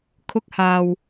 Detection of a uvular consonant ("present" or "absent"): absent